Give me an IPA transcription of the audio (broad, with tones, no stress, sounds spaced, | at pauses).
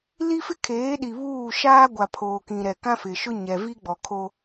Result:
l i˦ f ɪ˦ kʰ eː˨˦ ɗ i˨ β uː˦˨ ʃ aː˦ ɡʷ a˨ pʰ oː˨ k ĩ˨ ɾ ɛ˨ k ã˦ f ɪ˨ ʃ ʊ˦ ɲ ɛ˨ v i˦ ɡ͡b ɔ˨ kʰ o˦